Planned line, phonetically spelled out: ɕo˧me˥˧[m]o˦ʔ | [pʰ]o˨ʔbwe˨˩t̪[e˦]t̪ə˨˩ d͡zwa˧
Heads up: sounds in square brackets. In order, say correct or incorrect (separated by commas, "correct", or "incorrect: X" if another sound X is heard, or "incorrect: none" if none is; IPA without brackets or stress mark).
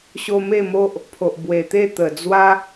correct, correct, incorrect: e˥˧